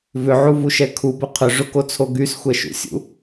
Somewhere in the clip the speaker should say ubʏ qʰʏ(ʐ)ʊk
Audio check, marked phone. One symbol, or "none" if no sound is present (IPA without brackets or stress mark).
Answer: ʐ